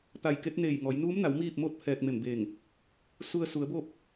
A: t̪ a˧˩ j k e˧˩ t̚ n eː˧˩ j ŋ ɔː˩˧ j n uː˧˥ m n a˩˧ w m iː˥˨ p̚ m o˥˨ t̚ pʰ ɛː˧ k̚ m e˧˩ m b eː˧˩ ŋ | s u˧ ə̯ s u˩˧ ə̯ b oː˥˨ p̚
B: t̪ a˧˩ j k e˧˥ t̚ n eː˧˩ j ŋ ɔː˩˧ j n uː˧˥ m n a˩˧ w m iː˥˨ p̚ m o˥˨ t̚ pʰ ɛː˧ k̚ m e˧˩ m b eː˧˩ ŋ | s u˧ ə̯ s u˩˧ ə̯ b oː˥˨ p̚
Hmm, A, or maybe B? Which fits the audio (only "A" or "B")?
B